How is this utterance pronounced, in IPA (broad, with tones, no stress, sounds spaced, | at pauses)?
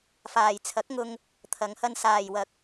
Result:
f aː˨ j t͡sʰ ɐ˨˥ k̚ ŋ ʊ˧ ŋ | t̪ʰ ɐ˨˧ ŋ h ɐ˧ n s aː˨ j w ɐ˨˥ k̚